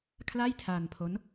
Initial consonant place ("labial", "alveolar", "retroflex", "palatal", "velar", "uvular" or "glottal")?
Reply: velar